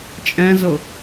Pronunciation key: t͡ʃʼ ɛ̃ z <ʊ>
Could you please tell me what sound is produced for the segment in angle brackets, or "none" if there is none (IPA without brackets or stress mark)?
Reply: ʊ